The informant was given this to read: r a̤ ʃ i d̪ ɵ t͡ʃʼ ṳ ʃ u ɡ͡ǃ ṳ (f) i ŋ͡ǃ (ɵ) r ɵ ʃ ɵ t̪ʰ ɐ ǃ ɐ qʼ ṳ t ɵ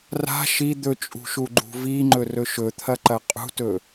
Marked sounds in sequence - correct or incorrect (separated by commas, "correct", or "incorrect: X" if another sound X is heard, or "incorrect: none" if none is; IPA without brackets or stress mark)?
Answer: incorrect: v, correct